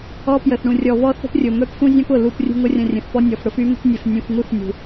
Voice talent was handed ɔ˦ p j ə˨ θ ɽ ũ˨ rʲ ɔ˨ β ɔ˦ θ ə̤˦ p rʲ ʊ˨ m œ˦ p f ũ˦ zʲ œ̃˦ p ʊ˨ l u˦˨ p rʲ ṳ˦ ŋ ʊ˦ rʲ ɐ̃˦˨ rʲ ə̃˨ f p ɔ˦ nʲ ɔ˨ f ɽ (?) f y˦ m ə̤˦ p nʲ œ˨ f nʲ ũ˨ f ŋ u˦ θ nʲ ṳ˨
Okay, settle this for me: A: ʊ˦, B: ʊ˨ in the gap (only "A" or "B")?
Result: A